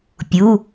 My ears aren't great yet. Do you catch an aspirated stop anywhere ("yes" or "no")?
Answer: no